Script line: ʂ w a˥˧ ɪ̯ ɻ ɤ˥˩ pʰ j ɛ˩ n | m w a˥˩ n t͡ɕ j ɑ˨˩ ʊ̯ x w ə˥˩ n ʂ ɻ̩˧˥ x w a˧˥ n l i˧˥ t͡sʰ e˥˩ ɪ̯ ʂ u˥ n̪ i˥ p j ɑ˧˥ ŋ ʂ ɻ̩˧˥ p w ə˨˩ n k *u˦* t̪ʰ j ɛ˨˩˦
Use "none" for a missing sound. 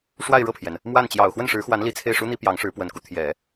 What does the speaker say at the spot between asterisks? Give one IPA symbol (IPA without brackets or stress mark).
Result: u˦